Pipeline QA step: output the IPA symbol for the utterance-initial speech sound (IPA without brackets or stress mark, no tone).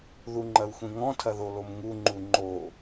ð